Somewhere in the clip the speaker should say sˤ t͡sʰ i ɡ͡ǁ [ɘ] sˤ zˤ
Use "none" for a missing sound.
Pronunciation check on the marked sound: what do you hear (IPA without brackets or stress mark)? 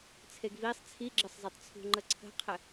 ɘ